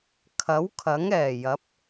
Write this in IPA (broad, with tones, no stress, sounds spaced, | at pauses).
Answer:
kʰ ɐ˨˥ w kʰ ɐ˨˥ ŋ ɛː˨˩ j ɐ˨˥ p̚